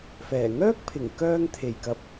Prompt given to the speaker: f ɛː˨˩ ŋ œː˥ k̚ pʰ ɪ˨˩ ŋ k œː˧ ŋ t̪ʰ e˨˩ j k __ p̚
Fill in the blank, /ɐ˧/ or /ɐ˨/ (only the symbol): ɐ˨